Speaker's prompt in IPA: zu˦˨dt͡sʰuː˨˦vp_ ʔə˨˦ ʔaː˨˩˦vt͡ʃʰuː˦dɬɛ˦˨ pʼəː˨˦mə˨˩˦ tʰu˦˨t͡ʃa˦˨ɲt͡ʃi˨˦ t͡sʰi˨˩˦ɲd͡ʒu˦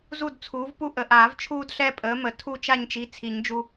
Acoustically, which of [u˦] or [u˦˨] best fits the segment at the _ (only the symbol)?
u˦